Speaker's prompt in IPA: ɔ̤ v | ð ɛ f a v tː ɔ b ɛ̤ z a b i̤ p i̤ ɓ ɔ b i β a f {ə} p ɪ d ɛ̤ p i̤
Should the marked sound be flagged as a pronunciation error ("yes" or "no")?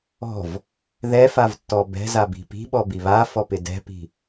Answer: yes